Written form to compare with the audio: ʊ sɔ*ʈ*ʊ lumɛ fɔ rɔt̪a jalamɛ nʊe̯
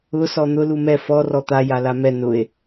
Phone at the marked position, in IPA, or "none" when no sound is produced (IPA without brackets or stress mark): n̪